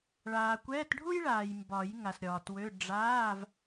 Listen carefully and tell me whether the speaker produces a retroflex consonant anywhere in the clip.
yes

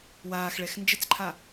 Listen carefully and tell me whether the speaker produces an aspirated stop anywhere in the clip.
yes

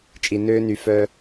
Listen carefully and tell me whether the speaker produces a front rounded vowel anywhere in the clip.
yes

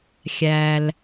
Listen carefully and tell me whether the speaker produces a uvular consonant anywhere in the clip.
no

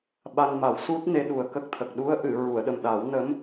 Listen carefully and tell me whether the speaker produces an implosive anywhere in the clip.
yes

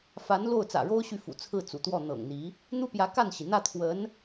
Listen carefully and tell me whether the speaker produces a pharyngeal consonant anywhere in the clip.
no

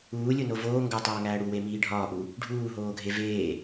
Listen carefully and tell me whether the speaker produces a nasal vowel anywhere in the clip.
no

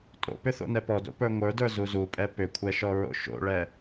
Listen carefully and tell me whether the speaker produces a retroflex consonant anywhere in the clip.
yes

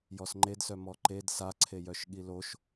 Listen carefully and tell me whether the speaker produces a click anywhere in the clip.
yes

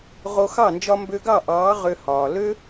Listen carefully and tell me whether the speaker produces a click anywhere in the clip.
no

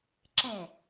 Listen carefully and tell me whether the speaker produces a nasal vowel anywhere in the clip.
yes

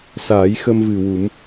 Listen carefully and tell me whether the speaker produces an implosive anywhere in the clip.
no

